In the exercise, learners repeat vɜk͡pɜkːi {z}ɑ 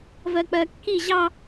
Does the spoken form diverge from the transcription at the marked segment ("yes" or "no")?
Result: yes